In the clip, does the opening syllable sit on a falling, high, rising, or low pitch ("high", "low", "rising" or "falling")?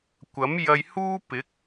rising